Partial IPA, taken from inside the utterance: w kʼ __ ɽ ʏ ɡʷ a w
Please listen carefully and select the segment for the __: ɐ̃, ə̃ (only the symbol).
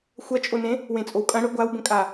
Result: ɐ̃